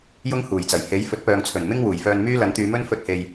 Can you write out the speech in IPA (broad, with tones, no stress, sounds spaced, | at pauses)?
j ʊ˥ ŋ h uː˨˩ j t͡s ɐ˨˩ j h e˨˥ j f ɵ˨˥ t̚ p œː˨ ŋ t͡sʰ ɵ˨˩ n m ɪ˥ ŋ w uː˨˩ j f œː˧ n m yː˥ l ɐ˨˥ n t̪ yː˨˧ m ɵ˥ n f ɵ˧ t̚ h e˨ j